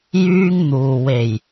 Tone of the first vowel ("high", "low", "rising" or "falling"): high